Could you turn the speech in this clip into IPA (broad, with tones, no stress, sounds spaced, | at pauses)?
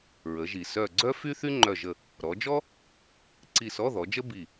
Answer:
ɹ ə˩˧ ʒ i˩ s œ˧˩ ɡ͡ǀ œ˥ f y˥ θ y˥ ŋ͡ǃ œ˧˩ ʒ ə˧˩ | ɾ ɔ˩˧ d͡ʒ ɔ˥ | ǀ i˧˩ s ɔ˧˥˧ ð ɔ˩˧ d͡ʒ ə˥ b i˧˩